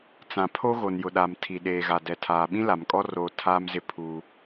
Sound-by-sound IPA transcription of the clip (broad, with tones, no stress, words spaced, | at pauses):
t͡sã˨ pʰo˦ɣo˨njʊ˨ɗa˨m tʰi˨ɗeː˨ɣa˨ dɛ˨ tʰaː˨ɓĩ˦la˨mkʼɔ˦ roː˦ tʰaː˦mzɪ˦ pʰu˦